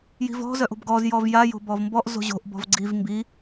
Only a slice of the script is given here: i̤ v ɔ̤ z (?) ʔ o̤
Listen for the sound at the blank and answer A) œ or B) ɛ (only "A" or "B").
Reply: A